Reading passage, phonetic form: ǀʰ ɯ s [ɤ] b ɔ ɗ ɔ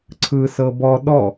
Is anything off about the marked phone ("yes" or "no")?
no